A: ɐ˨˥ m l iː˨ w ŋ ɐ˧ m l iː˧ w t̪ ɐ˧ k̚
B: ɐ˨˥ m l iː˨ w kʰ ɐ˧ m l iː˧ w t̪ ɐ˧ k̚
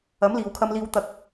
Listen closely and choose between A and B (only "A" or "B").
B